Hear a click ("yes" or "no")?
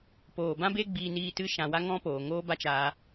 no